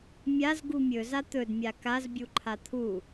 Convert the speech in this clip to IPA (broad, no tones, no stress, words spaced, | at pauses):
mʲaz ɡumʲɵ zat̪ɵdmʲa kazbʲu ǃʰat̪ʰu